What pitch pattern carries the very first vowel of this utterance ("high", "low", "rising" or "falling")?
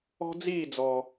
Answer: high